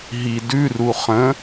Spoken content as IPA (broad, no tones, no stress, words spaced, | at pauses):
ɦidʉru χə̃